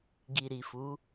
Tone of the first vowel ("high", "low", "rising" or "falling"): low